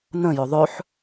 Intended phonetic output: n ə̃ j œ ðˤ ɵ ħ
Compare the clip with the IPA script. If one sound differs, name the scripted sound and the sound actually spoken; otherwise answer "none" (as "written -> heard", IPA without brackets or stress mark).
œ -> ɵ